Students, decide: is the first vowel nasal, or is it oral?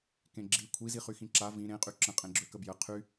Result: nasal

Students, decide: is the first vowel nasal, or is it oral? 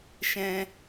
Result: nasal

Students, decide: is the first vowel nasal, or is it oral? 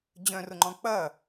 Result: nasal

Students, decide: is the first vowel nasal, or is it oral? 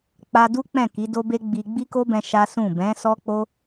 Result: oral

